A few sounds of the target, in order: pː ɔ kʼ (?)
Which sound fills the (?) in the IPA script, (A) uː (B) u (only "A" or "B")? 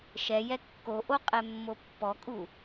B